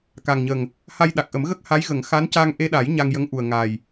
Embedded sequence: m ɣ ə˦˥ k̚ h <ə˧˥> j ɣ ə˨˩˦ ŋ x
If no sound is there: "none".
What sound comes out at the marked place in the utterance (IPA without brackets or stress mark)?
a˧˥